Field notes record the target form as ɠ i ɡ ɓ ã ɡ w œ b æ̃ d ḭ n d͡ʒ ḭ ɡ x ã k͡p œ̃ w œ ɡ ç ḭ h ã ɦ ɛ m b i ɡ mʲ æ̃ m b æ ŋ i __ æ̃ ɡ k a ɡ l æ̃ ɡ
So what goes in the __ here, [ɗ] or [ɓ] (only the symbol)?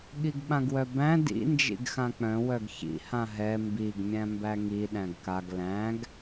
ɗ